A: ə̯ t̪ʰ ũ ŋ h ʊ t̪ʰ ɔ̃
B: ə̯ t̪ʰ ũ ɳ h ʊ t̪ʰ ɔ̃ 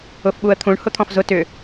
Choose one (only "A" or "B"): B